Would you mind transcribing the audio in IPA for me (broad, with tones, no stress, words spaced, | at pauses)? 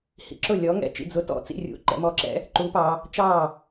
hḭ˩˧ǁʊ˥˩lʲɔ˨˥ ŋɛ̰˥˩t͡ʃḭ˥˩d͡zʊ˨˥tɔ̰˨˥ t͡sḭ˥˩rʲṵ˨˥ ǃɛ̰˩˧mɔ˨˥ǁɛ̰˨˥ | ǃu˨˥pɑ˩˧ | t͡ʃɑ˥˩